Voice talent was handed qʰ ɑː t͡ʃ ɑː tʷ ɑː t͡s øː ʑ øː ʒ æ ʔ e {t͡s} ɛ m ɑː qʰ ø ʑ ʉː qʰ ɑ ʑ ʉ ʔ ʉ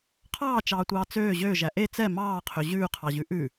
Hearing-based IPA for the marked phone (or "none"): t͡s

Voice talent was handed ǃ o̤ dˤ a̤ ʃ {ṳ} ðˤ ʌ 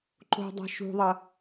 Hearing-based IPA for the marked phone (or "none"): ṳ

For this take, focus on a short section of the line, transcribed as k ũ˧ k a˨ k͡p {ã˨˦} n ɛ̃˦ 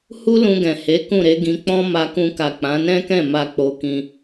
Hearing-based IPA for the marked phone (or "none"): ã˨˦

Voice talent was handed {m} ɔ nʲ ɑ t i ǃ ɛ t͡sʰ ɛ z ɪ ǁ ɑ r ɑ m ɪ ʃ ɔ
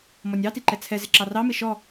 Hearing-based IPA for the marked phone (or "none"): m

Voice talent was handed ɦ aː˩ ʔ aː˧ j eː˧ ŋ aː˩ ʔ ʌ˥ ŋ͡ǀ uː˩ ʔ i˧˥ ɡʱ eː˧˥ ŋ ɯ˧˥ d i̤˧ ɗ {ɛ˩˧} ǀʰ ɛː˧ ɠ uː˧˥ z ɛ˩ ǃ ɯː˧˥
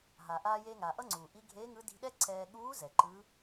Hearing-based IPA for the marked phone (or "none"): ɛ˥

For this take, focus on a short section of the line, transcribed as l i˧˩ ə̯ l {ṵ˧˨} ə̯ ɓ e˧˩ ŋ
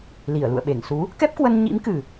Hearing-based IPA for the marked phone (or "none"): ṵ˧˨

